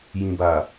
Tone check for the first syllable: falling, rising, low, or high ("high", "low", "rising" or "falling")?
low